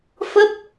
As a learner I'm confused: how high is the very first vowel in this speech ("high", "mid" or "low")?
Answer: mid